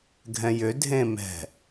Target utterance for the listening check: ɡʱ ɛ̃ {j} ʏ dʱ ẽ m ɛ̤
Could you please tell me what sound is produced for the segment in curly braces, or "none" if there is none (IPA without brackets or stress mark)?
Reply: j